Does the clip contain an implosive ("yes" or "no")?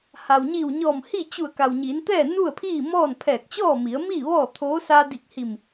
no